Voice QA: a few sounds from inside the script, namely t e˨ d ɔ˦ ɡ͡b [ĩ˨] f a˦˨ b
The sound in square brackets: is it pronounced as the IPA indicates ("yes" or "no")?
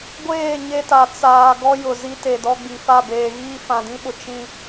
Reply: no